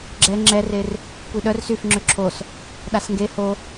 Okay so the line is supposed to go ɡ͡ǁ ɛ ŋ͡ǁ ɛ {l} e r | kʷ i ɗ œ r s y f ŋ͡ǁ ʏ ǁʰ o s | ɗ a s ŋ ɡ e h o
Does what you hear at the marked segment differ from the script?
yes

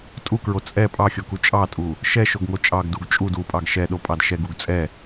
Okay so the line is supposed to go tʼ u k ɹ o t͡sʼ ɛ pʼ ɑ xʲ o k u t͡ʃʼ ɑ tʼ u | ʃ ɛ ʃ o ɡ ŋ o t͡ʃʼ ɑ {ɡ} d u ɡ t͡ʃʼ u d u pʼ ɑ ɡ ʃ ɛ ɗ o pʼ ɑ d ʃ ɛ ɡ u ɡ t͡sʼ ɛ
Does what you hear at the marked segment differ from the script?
no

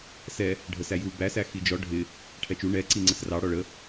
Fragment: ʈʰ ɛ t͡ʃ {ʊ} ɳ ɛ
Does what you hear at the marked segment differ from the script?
yes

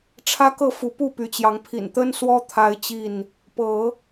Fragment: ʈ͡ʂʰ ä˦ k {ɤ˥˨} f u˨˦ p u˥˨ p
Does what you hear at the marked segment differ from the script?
no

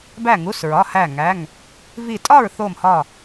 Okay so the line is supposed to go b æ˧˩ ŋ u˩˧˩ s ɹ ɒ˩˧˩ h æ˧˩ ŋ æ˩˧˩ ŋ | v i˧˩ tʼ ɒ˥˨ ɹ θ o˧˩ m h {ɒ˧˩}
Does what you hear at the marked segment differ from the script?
no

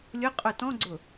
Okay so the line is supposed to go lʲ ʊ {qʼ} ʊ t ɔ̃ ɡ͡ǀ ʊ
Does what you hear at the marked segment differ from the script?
no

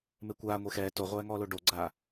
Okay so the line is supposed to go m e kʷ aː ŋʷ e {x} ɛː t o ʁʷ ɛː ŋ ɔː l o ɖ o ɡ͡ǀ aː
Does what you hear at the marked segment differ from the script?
no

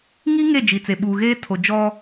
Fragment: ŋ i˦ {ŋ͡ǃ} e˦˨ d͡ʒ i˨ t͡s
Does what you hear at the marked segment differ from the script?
yes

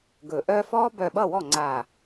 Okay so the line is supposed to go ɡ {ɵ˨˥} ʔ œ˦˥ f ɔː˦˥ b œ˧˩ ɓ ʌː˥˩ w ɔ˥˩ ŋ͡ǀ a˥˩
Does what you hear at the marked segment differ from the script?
yes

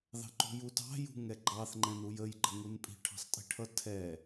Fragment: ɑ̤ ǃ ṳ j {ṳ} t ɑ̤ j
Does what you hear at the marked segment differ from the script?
yes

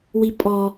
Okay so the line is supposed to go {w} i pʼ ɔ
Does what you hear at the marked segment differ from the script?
no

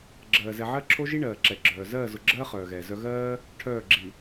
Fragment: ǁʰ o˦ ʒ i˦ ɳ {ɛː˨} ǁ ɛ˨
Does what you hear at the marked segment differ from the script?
yes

